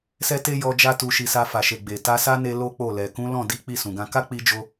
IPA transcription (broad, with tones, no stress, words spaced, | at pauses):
sɛ˦te˦jɔ˧ d͡ʒa˦tu˧ʃi˧sa˧ fa˨ʃe˨ ɡ͡be˨ ta˧sa˦ne˧ lo˦k͡po˦˨ lɛ˨ kũ˨˦lɔ̃˦˨ di˨˦ k͡pi˦˨sũ˨ɡã˧ ka˦k͡pi˧d͡ʒo˧